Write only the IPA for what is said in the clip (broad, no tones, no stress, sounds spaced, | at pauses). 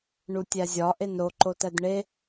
ɳ u tʲ æ zʲ ɒ ʔ e n ɾ o ǃ o t æ d ɳ e